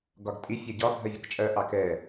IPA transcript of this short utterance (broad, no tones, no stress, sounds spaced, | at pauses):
ɡ ɒ ɡ tʼ i fʲ ɜ ɟ ɒ bʱ ɜ vʲ ʌ k t͡ʃʼ ɜ ʔ ɑ k ɛ